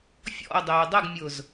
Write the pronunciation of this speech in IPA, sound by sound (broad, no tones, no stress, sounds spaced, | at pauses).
fʲ ɔ̰ o̯ dˤ øː dˤ ʊ ɡ mʲ ʊː z